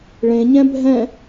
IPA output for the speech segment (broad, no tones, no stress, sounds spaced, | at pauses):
ɭ ẽ ɲ ɛ̃ bʱ ɛ̃